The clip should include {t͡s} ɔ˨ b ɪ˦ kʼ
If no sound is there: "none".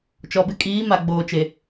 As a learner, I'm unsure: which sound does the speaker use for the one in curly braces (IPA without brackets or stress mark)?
t͡ʃ